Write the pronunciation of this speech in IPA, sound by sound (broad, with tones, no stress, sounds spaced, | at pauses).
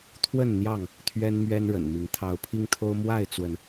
t̪ʰ w ə˥˨ n n̪ j ɑ˥˨ ŋ | t̪ʰ ɥ ɛ˦ n m ɥ ɛ˦ n ɻ ə̰˨˩ n m i˨˦ ŋ t̪ʰ ɑ˨˦ ʊ̯ pʰ i˦ ŋ t̪ʰ o˦ ʊ̯ m w a˥˨ ɪ̯ t͡s w ə˨˦ n